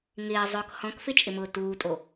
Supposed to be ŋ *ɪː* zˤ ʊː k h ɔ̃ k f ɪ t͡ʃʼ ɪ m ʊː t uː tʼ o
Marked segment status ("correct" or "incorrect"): correct